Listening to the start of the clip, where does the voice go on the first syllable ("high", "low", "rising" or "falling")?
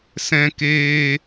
high